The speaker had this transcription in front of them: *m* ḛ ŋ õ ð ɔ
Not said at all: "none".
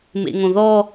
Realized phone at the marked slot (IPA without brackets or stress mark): m